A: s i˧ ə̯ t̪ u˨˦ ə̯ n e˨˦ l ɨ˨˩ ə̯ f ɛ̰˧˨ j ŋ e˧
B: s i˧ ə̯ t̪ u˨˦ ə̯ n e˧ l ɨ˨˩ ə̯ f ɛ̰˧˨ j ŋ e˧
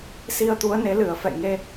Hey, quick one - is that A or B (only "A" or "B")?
A